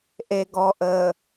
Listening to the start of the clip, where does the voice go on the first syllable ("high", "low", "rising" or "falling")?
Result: low